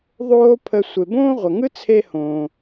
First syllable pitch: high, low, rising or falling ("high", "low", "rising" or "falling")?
high